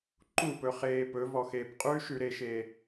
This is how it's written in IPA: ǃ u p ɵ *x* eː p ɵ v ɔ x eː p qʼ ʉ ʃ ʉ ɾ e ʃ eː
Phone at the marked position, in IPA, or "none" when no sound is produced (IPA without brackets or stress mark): χ